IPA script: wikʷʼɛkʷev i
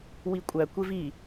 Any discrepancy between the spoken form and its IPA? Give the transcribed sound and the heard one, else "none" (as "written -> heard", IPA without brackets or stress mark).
ɛ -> æ